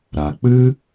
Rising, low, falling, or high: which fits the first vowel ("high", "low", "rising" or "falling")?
low